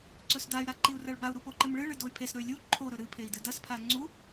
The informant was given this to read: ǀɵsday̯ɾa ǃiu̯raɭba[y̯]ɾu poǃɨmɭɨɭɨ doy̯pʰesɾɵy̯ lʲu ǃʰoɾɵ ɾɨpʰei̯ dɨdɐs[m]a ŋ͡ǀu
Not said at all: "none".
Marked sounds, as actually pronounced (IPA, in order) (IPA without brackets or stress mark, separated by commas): u̯, pʰ